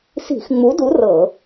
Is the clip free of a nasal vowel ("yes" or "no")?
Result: yes